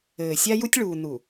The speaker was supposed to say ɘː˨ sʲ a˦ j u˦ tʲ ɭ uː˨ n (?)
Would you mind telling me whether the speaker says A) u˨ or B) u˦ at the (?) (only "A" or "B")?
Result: A